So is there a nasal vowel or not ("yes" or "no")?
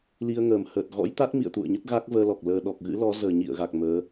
no